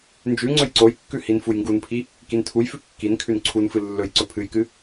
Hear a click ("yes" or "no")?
yes